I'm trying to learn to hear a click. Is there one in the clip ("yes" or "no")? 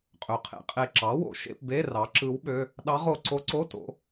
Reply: yes